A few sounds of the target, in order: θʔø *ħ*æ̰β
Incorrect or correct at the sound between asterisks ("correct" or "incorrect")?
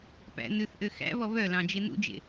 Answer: incorrect